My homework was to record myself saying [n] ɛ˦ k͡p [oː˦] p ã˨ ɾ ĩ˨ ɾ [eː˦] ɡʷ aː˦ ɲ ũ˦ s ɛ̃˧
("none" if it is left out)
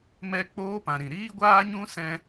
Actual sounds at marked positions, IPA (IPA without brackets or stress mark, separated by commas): m, oː˦, iː˦